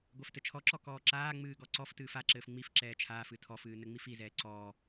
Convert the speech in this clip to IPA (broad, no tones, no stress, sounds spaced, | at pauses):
ɡʷ ɛ f t ɘ t͡ʃʰ ɔ ǁ ɔ k ɔː ǁ aː ŋ͡m ɨː ɡ ɔ ǀ ɔ f t ɨː f a ǁ ɘː f ŋ͡m i f ǁ ɛː t͡ʃʰ aː f ɨ tʰ ɔ f ɨː n ɘ ŋ͡m i f i z ɛː ǀ ɔː